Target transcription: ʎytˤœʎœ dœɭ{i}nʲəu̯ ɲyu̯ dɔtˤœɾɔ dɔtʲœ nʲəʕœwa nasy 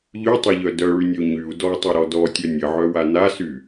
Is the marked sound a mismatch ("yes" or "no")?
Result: yes